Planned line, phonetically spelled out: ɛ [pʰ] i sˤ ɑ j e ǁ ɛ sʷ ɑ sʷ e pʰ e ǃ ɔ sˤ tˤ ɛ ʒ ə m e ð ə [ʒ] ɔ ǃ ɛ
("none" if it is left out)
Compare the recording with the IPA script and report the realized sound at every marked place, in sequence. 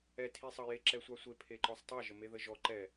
tʰ, ʒ

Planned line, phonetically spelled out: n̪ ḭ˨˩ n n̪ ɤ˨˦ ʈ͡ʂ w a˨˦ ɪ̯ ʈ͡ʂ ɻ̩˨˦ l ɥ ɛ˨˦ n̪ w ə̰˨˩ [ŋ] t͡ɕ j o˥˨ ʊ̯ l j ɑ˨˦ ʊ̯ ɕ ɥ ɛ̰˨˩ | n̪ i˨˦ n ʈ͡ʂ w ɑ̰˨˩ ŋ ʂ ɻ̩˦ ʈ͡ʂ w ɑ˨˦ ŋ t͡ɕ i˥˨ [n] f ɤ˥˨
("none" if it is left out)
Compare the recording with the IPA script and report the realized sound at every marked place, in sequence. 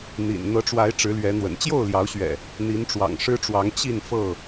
n, n

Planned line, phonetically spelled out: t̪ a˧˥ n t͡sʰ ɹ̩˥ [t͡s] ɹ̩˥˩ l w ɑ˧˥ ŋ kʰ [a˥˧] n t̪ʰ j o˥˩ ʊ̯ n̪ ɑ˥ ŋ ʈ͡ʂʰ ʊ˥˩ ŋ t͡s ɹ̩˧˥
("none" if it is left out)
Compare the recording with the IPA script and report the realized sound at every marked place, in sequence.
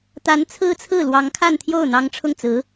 t͡sʰ, a˥˧

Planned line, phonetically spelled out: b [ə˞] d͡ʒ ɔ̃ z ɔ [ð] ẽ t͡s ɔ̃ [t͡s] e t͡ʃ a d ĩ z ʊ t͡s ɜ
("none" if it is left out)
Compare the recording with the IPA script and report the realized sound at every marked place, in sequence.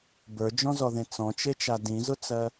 ə˞, ð, t͡ʃ

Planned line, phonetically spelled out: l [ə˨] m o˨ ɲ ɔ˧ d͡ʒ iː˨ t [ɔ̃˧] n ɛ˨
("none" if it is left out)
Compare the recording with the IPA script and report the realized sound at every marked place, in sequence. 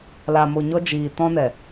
a˨, ɔ̃˧

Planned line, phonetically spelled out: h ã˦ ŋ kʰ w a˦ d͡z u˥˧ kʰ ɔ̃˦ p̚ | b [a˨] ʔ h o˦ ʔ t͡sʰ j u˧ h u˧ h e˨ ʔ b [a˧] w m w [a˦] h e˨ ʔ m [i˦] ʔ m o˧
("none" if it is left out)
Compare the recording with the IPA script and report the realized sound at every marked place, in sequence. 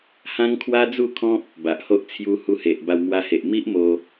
a˨, a˧, a˧, i˦

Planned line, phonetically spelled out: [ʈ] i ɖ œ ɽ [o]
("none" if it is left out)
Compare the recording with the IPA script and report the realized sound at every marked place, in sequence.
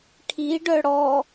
ʈʰ, ɔ

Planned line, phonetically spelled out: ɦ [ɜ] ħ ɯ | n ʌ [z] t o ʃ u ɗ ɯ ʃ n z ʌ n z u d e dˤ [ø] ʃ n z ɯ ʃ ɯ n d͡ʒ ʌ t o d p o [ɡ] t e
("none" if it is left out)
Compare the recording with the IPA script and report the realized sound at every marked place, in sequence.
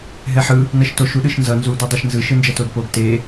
ɛ, ʃ, ɛ, ɡ

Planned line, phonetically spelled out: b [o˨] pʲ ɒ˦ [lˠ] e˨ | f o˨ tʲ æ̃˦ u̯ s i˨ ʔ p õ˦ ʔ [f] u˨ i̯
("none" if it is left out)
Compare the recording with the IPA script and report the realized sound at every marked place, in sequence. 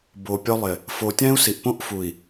o˨, lˠ, f

